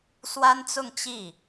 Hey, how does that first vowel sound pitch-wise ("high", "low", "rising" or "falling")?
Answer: high